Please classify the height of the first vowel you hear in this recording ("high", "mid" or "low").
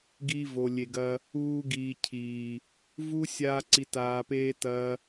high